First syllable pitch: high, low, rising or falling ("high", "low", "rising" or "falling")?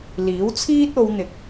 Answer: rising